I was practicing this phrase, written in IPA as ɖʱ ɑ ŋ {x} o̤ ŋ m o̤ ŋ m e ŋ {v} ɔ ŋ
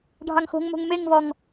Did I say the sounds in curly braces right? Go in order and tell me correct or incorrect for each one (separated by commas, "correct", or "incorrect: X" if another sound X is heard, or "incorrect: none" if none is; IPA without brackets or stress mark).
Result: correct, correct